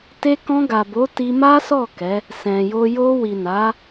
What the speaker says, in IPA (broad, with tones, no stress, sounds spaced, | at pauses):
t e˧ k ɔ̃˧ ɡ a˨ b o˨˦ t i˧ m a˦ s ɔ˦˨ k ɛ˨˦ | s ɛ̃˨ j o˧ j o˧ w i˨ n a˨˦